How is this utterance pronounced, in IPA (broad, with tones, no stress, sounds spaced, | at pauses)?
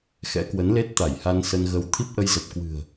x ɛ̰˧˥ k w ə˨˦ n l e˦˥ t̚ t̪ a˧˩ j h a˧ n s ə˧ n ɣ ə˧ w t̪ʰ i˦˥ p̚ ʔ ə˧ j z ə˨˩ p̚ k w ɨ̤˨˩ ə̯